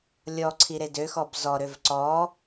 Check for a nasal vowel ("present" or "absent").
absent